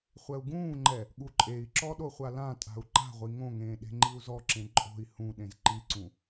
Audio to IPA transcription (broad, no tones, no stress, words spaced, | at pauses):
χʷɛu̯ɡũːŋ͡ǃɛ | ɠuǃʼei̯ǁɔ ɗoχʷalãtʼa̤u̯ ǃa̤ʁʷi ŋõŋẽː ɗe̤ŋ͡ǃiu̯zɔǁẽ ǃʼo̤i̯ hũɗẽz ǃiǀũ